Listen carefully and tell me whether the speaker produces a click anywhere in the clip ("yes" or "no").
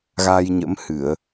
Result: no